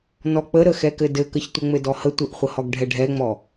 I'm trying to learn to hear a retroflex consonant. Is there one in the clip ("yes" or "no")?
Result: yes